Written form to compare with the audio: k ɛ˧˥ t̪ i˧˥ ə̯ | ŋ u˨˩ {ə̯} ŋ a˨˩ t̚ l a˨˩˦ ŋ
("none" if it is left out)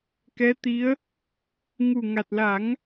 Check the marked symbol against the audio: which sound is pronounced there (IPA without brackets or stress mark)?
none